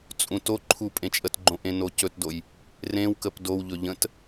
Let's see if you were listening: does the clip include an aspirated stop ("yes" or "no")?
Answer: yes